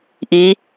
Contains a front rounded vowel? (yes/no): no